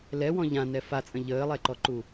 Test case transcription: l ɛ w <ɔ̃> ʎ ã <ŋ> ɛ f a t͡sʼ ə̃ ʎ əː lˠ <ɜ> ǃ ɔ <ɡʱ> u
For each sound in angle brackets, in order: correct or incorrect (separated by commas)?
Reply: correct, incorrect, incorrect, incorrect